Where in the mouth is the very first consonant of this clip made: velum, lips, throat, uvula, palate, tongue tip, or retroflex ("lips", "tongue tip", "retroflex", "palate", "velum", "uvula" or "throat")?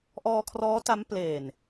throat